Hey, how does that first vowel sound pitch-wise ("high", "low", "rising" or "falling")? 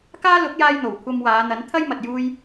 high